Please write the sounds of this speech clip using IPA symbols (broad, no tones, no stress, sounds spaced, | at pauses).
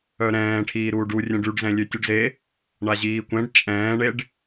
œ ɾ ɛ̃ː ʈʰ iː ɾ uː ɖ u rʲ ɛ̃ ɖ y ɖ z ɛ̃ lʲ ø tʲ u ɖ z e | ɳ a ʑ iː kʷ ɛ̃ ɖ t͡ʃʼ ɛ̃ː ɳ e ɖ